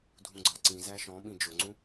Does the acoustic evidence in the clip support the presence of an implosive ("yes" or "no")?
yes